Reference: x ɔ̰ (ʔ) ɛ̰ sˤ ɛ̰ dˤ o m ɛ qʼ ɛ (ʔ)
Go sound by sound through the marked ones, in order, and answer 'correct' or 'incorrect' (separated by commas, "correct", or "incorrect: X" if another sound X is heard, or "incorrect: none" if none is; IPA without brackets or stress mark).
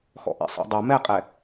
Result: correct, incorrect: none